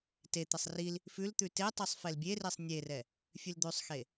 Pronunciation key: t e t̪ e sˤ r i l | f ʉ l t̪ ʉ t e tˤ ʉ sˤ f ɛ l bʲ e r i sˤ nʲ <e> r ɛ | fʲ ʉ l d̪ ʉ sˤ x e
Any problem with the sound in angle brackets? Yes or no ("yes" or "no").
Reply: no